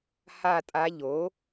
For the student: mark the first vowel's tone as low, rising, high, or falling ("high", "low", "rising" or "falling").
falling